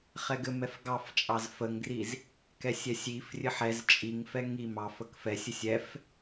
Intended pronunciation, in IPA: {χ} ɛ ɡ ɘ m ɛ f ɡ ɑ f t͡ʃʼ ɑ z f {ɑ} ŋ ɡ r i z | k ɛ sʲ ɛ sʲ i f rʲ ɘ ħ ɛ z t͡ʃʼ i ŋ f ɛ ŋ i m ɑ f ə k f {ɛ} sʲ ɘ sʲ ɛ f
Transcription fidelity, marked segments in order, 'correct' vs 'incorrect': correct, incorrect, correct

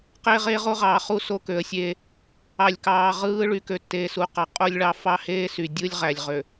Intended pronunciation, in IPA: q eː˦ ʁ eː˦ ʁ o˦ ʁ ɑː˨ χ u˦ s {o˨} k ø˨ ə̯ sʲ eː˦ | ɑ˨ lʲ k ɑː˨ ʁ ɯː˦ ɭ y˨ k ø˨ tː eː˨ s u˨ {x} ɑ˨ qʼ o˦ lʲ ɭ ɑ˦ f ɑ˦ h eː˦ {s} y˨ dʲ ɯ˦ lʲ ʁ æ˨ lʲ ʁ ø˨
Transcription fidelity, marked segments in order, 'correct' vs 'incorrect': incorrect, incorrect, correct

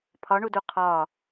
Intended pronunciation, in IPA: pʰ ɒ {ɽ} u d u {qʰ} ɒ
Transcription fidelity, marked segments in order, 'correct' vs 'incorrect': incorrect, correct

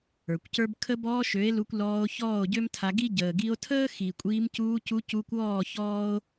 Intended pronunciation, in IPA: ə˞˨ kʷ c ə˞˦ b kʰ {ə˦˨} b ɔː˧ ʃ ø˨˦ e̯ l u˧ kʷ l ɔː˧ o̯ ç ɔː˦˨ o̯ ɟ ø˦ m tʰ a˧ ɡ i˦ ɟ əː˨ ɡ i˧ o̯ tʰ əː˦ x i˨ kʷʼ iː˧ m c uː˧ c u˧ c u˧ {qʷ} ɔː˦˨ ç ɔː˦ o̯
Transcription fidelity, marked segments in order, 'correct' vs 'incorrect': incorrect, incorrect

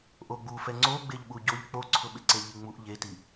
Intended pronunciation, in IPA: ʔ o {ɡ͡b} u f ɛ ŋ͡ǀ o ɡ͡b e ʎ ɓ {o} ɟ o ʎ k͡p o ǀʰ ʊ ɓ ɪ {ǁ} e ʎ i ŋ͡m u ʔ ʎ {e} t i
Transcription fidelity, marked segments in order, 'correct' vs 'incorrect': correct, incorrect, incorrect, correct

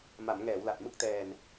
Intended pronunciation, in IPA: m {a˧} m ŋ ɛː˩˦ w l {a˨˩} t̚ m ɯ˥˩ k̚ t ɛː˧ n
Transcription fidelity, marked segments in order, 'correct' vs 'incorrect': incorrect, correct

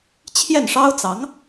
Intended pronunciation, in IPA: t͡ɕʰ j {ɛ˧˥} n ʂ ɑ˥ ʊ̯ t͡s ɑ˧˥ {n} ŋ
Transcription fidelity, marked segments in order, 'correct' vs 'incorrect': incorrect, incorrect

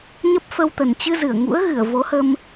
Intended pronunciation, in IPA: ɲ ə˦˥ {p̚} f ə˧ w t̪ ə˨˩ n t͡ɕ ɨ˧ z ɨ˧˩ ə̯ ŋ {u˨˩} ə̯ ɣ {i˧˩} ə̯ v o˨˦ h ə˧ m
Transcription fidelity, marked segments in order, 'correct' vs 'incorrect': correct, incorrect, incorrect

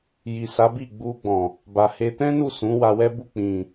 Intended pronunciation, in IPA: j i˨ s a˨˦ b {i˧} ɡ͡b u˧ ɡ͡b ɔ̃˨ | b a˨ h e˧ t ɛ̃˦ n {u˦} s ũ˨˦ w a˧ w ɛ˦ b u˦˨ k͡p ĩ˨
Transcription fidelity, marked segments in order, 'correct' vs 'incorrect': incorrect, incorrect

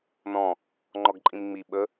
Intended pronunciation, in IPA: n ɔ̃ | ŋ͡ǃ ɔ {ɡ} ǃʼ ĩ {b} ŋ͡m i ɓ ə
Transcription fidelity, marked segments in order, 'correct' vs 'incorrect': correct, incorrect

